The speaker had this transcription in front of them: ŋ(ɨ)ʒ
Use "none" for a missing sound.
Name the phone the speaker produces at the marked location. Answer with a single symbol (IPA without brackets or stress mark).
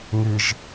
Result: ɨ